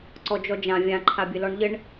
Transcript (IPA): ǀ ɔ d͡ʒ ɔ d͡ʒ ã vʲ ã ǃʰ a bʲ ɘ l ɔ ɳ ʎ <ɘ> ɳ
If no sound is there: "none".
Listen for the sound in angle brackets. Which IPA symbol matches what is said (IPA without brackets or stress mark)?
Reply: ɘ